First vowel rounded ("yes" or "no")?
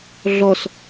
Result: yes